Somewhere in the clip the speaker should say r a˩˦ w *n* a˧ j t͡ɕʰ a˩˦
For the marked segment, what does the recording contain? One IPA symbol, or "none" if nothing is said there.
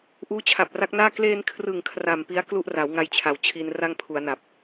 ŋ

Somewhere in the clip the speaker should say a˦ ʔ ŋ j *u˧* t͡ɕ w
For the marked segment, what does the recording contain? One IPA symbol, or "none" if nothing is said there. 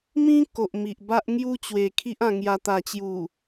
u˦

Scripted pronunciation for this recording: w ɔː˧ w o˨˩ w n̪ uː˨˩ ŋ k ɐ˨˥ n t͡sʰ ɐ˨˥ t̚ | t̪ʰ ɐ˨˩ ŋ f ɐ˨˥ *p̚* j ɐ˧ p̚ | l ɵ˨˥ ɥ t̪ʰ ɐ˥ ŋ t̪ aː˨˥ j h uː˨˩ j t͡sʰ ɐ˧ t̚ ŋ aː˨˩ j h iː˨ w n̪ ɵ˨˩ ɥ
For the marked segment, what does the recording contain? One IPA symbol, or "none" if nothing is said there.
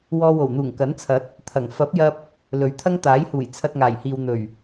p̚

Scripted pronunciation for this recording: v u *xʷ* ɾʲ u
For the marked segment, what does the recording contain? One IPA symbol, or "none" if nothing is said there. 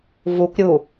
kʷ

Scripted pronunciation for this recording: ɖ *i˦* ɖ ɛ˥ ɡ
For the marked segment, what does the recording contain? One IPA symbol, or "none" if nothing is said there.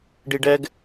i˦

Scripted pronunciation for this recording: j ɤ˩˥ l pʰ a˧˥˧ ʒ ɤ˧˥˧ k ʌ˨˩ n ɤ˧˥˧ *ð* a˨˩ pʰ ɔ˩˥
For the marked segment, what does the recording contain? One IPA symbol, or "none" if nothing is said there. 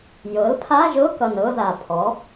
ð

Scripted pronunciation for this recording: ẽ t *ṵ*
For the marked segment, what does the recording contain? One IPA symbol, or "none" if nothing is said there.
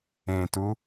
u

